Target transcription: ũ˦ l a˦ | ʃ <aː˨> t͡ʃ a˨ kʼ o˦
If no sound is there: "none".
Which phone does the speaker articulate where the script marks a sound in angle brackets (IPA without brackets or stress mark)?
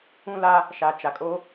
a˨